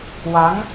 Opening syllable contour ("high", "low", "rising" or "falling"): rising